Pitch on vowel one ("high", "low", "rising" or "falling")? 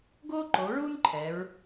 high